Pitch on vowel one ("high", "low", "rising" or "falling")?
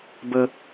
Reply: high